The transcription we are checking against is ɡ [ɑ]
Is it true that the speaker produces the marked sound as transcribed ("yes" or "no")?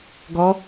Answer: no